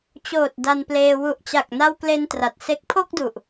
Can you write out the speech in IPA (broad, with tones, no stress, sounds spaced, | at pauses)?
t͡ɕ oː˨˩ t̚ d a˧ n p l eː˧ w u˨˩ ʔ t͡ɕ a˨˩ k̚ n a˧ w k l e˧ n t r a˨˩ t̚ s e˦˥ k̚ pʰ o˥˩ k̚ d u˨˩ ʔ